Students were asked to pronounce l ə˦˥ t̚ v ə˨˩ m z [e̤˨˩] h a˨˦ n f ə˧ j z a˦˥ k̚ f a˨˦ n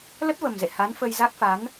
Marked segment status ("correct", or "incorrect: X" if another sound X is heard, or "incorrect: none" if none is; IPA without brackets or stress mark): incorrect: ḛ˧˨